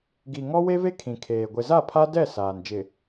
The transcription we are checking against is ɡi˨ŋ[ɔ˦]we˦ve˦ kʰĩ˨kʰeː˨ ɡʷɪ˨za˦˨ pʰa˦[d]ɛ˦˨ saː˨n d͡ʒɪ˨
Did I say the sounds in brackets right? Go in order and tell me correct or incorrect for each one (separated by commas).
correct, correct